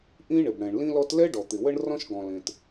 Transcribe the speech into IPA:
ʔ ĩ˥ ɳ ɪ˩ b ɽ ɛ̃˩ ɳ l ĩ˥ l ɔ˥ t l ɛ˥ ɖ ɔ˩ t̪ ɪ˩ w ə˥ ɳ r ɔ̃˥ ʃ ɡ ɔ̃˩ l ẽ˩ t

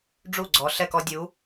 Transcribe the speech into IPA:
ɖ͡ʐ u˥˩ ɡ͡ǀ ɔ˨˦ ɬ ɛ˥˩ k ɔ˦ dʲ u˨˦

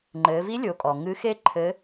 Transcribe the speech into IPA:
ŋ͡ǃ ɘː˩˧ v i˧˥ lʲ o˩˧ kʼ ɔ˩ ŋ ɨ˧˥ x e˥ ǃʰ ɘ˧˥

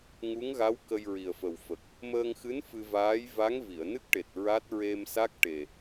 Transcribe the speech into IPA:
ŋ u˧˥ ŋ ɣ a˧˥ w k ə˧ j ɹ i˨˩ ə̯ f ə˨˩ w f ə˨˩ k̚ | m əː˧ ŋ x ɨ˧˥ n f ɨ˧ v aː˧˥ j v a˧˥ ŋ v i˨˩˨ ə̯ n ɨ˦˥ k̚ ʈ e˨˩ t̚ ɹ a˦˥ t̚ ɹ e˧ m s a˦˥ k̚ ʈ e˨˩

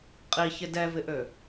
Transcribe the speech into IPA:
qʼ i ç ɪ d ɛ v ɪ ʔ ø

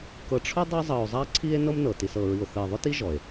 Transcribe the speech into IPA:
k ɤ˨ ʈ͡ʂʰ ʊ˥ dˤ ɤ˦ zˤ ɤ˨ o̯ zˤ a˦ ǀʰ i˦ e̯ n ɤ˦ m n ɤ˩ t i˨ s ɤ˨ ɹ i˨ o̯ θ ɘ˨ e̯ ðˤ ʊ˥ t i˦ ʒ ɔ˩ e̯

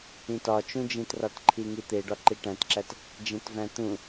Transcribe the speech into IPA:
ĩ t ɒ t͡ʃ ũ d͡ʒ ĩ t r ɒ t ǃʰ i ŋ i t̪ e ɖ ɒ ǃ i ʈ æ̃ t ǁ æ t | d͡ʒ ẽ t v æ̃ t̪ ũ

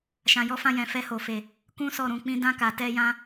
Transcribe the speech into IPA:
ʃ ã˧ j ɔ˦ f ã˦ j ɛ̃˧ f ɛ˦ h o˧ f e˧ | k ũ˦ s ɔ˦˨ ɾ ũ˧ k͡p ĩ˦ d ã˦ k a˧ t ɛ˦ j ã˦

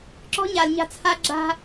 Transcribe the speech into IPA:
ǁ ɔ̤˦ ɲ a˨ l ɲ a̤˦˨ t͡sʰ a˦ ɡ͡ǁ a̤˦

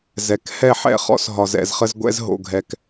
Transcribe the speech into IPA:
z ɛ˨ k h ɛ˦˨ ħ ɛ̰˦˨ χ ɔ̰˦ s ɦ ɒ˨ z ɛ̰˨ z χ ə˧ z ɡʷ ɛ̰˧ z ɦ o̰˨ ɡʱ ɛ˨ k

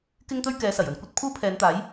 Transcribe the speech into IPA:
k ɪ˥ ŋ t̪ ɵ˥ ɥ k ɛː˨˧ s ɐ˨˩ j ɵ˨ n kʷ ɐ˥ t̚ pʰ uː˥ pʰ ɛː˨˧ n t̪ aː˨˥ j

